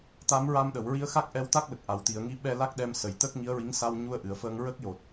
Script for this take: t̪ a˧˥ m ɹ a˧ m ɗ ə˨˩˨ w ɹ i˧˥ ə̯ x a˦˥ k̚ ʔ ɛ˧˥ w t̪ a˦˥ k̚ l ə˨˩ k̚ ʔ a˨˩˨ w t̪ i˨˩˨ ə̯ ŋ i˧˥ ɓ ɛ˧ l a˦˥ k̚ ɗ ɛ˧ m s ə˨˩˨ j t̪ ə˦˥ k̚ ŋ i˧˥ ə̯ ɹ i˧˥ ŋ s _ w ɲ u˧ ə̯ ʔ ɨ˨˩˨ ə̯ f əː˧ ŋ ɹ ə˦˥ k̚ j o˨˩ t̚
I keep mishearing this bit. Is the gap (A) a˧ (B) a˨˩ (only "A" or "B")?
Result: A